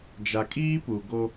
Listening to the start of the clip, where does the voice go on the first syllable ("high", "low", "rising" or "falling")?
low